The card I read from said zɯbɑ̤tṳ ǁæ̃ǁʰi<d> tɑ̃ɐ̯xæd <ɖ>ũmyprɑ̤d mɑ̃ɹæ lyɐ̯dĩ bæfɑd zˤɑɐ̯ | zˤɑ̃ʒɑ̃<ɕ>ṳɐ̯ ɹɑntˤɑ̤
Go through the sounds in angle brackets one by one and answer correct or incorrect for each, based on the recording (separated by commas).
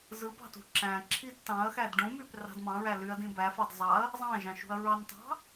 correct, correct, incorrect